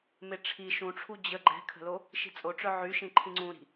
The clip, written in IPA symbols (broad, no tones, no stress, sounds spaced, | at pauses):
m e ʈ͡ʂʰ i ʃ ũ ʈ͡ʂʰ u d͡ʑ ə ɡ͡ǃ ɛ̤ kʰ ə̤ l o | ʃ i̤ t͡sʼ o ʈ͡ʂ œ ʕ y ʃ ĩ ǃʰ ĩ ŋ͡ǀ ũ ɾ i̤